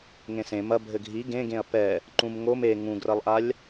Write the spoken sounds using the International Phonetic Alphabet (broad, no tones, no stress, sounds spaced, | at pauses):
ŋ ẽ s ẽ m ɐ bʱ ɘ ɡʱ i ɡ ẽ ɡ ẽ ɐ̯ p ɛ | ǃ ũ m ŋ o m e ŋ ũ ɡ r ɐ lˠ ʔ a lʲ